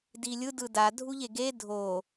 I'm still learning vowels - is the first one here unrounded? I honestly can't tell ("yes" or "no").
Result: yes